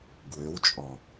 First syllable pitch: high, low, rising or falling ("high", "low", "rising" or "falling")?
rising